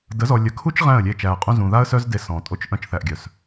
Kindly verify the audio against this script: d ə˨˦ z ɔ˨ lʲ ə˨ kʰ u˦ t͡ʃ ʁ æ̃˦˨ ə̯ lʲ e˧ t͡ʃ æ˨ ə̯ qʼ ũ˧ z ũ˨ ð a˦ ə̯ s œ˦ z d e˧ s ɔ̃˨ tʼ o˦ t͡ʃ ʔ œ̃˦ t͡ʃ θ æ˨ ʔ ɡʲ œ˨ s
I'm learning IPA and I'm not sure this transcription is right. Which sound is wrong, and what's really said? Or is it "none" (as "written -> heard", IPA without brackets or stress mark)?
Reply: œ̃˦ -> œ̃˧